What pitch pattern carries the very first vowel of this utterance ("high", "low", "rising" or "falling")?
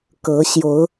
rising